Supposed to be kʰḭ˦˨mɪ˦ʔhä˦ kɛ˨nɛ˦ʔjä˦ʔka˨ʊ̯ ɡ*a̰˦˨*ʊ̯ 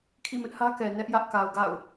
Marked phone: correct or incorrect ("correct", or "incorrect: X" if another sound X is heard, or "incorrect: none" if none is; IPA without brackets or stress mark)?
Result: correct